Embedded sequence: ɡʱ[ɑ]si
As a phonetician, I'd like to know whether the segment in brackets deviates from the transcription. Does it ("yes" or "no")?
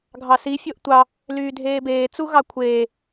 no